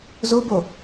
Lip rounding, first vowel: rounded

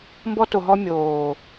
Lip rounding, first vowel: rounded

